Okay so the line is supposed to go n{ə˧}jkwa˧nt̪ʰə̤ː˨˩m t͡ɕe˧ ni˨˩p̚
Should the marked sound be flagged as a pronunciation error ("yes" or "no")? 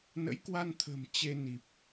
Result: yes